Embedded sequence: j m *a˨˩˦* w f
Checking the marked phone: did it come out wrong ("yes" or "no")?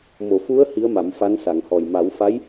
no